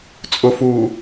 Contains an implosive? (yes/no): no